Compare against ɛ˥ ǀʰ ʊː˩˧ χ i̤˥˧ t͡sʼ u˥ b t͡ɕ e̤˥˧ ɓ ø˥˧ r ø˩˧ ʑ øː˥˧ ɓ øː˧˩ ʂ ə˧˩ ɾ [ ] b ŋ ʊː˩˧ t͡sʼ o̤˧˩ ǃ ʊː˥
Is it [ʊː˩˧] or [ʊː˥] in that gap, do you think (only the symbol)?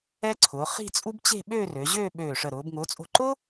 ʊː˩˧